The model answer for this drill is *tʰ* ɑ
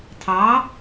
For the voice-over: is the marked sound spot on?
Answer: yes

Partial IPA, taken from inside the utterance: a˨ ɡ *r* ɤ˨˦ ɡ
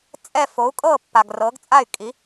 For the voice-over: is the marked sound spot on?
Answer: yes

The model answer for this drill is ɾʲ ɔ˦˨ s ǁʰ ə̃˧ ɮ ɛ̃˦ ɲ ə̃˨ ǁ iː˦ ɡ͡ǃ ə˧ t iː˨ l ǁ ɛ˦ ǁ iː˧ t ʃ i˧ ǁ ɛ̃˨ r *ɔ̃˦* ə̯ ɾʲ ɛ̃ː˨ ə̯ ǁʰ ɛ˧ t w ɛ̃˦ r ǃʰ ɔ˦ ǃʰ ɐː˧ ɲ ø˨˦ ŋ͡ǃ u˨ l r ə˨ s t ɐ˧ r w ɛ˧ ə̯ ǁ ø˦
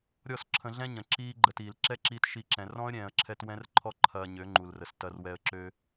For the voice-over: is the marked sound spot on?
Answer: yes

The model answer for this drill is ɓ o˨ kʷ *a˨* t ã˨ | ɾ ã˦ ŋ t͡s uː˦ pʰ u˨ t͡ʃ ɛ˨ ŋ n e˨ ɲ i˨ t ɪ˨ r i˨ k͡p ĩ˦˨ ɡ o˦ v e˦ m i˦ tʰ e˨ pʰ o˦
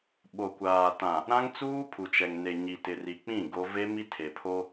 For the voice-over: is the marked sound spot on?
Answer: no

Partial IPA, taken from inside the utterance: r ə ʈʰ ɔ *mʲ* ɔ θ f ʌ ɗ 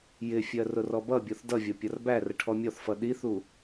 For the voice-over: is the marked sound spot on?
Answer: yes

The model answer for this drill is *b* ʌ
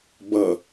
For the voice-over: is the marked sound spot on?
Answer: yes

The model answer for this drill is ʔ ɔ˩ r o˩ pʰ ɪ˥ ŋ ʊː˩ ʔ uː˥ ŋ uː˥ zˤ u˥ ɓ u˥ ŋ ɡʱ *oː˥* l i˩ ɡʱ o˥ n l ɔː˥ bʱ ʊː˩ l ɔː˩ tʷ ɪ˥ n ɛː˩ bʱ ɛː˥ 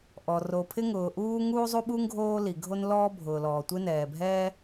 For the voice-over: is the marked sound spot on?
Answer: yes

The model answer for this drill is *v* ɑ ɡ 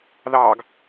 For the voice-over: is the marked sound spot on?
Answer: no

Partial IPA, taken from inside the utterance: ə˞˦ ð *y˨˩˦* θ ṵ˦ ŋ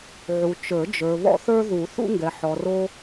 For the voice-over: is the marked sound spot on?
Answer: no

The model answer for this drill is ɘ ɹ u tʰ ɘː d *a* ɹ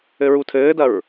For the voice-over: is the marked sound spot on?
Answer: no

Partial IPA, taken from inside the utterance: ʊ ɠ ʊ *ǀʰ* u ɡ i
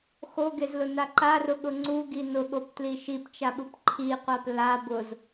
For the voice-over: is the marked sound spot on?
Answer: no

